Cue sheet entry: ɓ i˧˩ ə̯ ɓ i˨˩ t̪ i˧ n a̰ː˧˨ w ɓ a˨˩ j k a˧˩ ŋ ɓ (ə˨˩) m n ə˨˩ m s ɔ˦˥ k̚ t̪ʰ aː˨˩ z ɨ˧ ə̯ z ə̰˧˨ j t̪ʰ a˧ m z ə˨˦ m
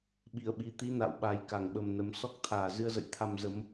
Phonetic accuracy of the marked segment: correct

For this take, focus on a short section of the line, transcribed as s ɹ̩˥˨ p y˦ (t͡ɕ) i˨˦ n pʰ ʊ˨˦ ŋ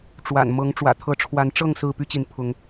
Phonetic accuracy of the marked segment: correct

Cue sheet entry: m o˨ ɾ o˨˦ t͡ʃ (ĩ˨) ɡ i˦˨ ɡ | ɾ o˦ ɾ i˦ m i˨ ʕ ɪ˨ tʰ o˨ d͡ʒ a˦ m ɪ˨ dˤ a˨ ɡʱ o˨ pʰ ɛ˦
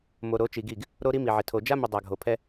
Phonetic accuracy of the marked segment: incorrect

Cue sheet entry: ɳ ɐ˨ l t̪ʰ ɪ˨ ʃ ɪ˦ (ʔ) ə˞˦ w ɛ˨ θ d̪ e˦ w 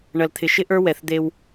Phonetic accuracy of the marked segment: correct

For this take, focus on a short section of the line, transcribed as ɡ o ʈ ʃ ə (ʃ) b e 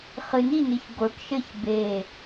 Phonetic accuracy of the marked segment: incorrect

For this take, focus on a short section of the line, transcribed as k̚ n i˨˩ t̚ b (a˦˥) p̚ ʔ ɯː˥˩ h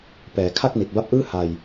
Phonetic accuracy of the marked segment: correct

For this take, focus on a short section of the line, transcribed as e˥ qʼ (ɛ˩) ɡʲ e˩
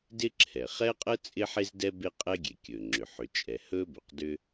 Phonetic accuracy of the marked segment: incorrect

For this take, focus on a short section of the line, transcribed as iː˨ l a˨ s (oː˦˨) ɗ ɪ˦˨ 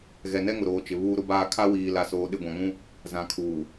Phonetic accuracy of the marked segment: incorrect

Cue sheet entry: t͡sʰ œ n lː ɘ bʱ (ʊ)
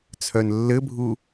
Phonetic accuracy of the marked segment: incorrect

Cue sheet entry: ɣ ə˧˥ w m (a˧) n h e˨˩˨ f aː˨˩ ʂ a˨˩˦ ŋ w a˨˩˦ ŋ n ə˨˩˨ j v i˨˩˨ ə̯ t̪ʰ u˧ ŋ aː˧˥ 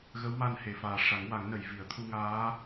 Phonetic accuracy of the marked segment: correct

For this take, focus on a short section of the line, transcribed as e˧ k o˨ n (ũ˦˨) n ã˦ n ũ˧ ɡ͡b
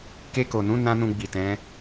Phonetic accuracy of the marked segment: incorrect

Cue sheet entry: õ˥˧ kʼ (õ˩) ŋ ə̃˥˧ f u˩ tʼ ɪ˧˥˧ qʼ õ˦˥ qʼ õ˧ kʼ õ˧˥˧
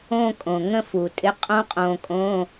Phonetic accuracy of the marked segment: correct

